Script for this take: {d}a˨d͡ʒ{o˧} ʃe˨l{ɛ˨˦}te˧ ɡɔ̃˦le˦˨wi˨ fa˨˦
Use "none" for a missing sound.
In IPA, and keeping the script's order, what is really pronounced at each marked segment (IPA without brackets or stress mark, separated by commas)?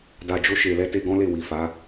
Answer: d, o˧, ɛ˨˦